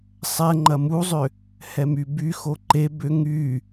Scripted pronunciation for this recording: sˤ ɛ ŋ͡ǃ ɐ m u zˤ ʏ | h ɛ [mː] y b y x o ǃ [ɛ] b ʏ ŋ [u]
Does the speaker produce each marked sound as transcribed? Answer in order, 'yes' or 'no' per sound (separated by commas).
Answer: no, no, no